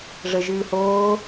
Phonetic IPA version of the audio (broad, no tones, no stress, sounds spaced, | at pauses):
ʐ ə ʒ ɨː h oː